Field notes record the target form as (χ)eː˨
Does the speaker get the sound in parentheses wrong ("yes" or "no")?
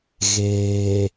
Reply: yes